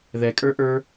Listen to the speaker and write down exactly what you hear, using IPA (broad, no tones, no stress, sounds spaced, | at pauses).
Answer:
ð ɛ kʼ ə˞ ʔ ə˞